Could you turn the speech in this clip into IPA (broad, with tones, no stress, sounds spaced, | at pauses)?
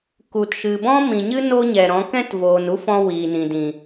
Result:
k u˨ t ʃ ɨ˨ b ɔ̃˦ m ĩ˨ ɲ ɨ˦ n o˦ ɲ ɛ˨ ɾ ɔ̃˨˦ k ɛ̃˦ t v oː˨ n u˦ f ɔ̃˧ w iː˨ n ĩ˨ d ĩ˨